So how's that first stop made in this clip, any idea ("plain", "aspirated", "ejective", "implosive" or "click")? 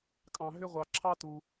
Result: ejective